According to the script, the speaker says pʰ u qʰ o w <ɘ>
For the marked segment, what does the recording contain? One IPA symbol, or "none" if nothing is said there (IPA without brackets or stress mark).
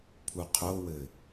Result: ɘ